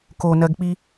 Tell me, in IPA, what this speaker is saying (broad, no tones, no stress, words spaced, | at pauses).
konɜɡk͡pi